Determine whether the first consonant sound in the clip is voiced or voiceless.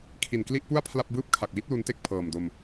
voiceless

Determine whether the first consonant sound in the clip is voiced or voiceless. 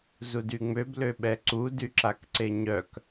voiced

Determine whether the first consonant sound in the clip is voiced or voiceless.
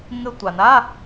voiced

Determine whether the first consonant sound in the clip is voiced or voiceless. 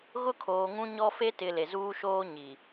voiced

